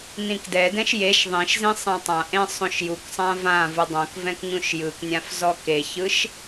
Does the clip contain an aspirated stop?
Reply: no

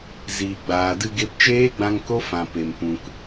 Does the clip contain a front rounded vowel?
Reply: no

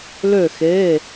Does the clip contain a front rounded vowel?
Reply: yes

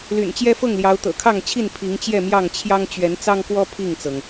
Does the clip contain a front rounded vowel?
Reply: yes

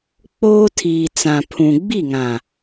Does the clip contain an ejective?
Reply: no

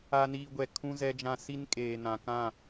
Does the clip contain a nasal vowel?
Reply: yes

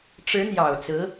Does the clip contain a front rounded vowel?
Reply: no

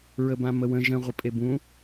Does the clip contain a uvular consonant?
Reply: yes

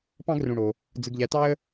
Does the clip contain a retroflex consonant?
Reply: yes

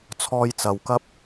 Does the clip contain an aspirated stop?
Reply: yes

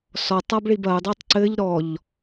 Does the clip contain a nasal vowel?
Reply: no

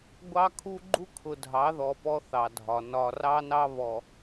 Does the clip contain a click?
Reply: yes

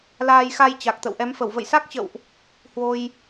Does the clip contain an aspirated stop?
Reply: no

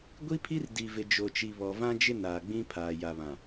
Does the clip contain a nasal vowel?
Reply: yes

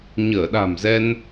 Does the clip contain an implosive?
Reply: yes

